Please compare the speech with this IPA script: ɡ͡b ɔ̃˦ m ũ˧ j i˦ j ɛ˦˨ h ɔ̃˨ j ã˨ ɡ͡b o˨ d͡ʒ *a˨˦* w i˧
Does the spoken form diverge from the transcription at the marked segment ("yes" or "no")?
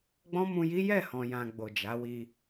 no